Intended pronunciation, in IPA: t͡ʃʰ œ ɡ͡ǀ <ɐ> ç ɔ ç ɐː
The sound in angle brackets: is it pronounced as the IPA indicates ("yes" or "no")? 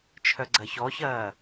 yes